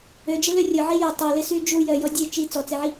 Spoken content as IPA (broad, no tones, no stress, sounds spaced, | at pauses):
ø d͡ʒ e l ø rʲ ʊ ʕ i j e tˤ ø l ɪ s y d͡ʒ u j œ j ɔ dʲ e t͡ʃ i t͡s ɔ t͡s e ʕ i